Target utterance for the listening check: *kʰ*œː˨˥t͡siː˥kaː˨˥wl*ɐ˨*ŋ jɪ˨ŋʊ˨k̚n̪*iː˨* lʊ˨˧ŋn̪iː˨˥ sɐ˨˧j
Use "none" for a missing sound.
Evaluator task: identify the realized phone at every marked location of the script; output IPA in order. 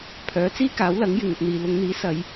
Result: pʰ, ɐ˨˥, iː˨

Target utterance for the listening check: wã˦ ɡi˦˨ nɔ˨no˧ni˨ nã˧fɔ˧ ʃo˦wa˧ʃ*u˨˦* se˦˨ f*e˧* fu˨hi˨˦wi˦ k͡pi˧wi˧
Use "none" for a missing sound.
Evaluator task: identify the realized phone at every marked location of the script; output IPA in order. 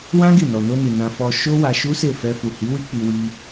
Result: u˦, ɛ˧

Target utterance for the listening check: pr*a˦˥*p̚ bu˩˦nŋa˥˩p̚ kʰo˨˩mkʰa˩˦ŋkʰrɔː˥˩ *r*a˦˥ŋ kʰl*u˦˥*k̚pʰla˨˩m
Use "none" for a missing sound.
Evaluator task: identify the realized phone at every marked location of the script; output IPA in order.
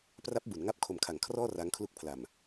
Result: a˦˥, r, u˦˥

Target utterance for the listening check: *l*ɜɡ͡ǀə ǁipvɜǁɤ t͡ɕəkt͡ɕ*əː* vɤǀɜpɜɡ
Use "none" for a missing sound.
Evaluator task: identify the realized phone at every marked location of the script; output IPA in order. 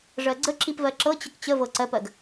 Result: ʐ, ə

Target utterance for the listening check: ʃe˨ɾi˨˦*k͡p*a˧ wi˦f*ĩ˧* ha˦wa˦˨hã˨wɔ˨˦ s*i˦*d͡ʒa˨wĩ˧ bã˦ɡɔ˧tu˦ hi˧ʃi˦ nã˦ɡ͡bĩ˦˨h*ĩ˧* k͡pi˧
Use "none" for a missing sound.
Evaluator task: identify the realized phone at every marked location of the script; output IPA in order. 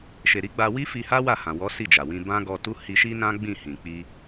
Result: ɡ͡b, i˧, i˦˨, ĩ˨

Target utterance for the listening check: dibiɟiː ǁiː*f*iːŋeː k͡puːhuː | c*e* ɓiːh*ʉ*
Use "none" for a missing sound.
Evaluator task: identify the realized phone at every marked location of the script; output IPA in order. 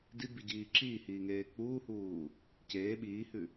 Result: h, eː, ʉ

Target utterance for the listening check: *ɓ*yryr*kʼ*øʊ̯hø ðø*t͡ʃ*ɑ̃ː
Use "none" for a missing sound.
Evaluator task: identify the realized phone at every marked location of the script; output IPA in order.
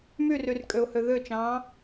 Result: m, kʼ, t͡ʃ

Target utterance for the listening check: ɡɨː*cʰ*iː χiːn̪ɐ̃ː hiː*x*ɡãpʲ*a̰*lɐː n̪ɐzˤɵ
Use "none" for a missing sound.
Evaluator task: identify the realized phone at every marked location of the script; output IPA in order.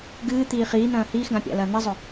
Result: t̪, x, a̰

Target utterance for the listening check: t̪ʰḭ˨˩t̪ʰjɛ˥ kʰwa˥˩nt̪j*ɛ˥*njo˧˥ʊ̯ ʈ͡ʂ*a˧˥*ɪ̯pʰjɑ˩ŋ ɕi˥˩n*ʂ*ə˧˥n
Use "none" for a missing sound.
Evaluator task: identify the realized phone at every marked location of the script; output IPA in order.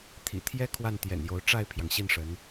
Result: ɛ̰˨˩, a˥˩, ʂ

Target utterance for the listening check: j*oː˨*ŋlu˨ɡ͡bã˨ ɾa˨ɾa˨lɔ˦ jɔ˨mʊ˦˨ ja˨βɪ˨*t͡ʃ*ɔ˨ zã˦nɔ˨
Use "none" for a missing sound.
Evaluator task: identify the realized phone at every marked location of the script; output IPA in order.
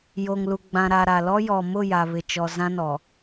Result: o˨, t͡ʃ

